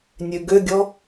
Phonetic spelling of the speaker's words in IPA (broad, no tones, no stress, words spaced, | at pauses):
nʲøɡøɡʲɔ